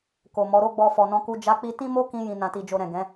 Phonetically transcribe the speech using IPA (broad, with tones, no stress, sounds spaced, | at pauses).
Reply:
k o˨ m ɔ˨˦ ɾ o˦ ɡ͡b ɔ˧ f ɔ˨ n ɔ̃˧ k u˧ d͡ʒ a˧ k͡p i˧ t ĩ˦ m o˦ k ĩ˧ j ĩ˨ n ã˨ t i˨ d͡ʒ o˨ ɾ ɛ̃˨ ɡ ɛ̃˨˦